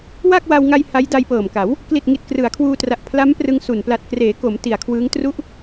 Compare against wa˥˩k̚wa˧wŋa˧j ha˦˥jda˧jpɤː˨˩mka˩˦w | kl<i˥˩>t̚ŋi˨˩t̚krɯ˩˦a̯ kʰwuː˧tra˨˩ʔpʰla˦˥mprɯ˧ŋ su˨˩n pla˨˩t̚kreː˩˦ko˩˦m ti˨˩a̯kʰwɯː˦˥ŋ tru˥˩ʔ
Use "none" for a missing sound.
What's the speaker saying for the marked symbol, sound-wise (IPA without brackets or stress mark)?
i˨˩